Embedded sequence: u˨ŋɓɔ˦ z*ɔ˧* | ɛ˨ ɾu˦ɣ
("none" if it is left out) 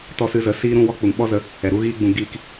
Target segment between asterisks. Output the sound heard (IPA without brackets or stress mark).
ə˧